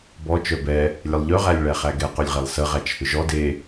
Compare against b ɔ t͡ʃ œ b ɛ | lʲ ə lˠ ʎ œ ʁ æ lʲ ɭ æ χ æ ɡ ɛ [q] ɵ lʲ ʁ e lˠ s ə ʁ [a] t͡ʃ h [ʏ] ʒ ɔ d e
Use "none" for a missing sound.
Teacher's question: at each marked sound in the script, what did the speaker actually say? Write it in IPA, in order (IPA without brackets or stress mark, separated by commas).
q, æ, ʏ